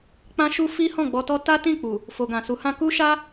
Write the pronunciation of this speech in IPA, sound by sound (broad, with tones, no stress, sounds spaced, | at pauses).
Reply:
k͡p ã˦ ʃ u˦ f i˦ h ɔ̃˦˨ ɡ͡b ɔ˧ t ɔ˦ t a˦ t ĩ˦˨ k͡p u˨ | f o˨ ɡ ã˨ s u˨˦ h ã˦ k u˦ ʃ a˦